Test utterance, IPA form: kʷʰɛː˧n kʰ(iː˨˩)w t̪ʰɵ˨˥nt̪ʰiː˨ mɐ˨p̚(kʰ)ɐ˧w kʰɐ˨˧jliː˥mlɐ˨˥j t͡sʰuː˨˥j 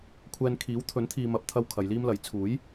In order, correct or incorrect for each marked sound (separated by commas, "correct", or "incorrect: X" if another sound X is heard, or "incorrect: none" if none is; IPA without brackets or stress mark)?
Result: incorrect: iː˨˥, incorrect: t̪ʰ